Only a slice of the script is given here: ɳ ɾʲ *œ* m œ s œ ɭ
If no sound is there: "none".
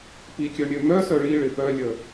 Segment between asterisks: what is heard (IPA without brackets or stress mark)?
ø